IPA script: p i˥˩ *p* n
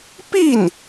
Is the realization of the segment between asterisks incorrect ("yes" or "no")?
yes